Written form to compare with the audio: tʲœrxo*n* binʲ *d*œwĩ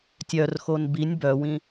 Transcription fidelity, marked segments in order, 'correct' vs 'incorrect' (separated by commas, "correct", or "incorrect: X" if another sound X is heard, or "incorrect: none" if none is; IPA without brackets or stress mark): correct, incorrect: b